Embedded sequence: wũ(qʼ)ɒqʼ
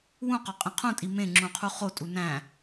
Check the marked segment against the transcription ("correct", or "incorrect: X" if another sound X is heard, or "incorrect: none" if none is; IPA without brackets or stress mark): incorrect: q